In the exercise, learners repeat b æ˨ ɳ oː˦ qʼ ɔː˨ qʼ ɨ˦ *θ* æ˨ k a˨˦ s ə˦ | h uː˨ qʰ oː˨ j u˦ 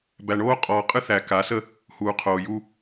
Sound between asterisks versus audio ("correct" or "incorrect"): correct